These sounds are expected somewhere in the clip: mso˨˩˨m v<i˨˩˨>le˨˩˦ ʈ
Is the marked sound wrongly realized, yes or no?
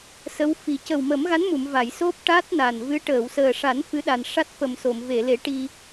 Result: yes